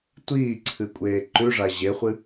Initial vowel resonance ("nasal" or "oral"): oral